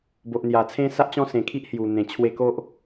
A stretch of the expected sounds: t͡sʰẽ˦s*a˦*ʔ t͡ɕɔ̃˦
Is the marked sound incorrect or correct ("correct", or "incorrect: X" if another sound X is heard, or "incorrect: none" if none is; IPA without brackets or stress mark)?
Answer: correct